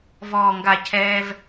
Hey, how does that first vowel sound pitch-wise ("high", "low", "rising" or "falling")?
low